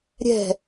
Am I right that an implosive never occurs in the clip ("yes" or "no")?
yes